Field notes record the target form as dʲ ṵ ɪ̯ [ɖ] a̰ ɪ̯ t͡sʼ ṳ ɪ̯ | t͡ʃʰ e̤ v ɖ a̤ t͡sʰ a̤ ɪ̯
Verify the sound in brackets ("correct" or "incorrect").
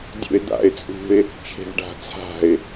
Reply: incorrect